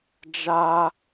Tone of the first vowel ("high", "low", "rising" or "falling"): high